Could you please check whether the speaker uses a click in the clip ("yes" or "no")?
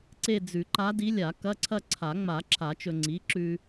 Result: yes